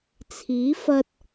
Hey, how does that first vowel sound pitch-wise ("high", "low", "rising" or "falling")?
rising